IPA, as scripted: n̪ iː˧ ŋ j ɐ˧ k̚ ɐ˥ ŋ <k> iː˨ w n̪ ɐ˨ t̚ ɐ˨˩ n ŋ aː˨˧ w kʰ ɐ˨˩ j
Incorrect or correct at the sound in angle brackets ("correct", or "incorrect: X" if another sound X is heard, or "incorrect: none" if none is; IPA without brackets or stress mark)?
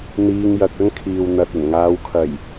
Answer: incorrect: kʰ